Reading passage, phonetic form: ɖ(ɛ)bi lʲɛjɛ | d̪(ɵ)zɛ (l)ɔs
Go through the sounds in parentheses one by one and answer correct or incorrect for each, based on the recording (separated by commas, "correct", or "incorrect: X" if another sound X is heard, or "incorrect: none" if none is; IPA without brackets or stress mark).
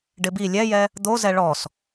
incorrect: ɪ, incorrect: o, incorrect: ɭ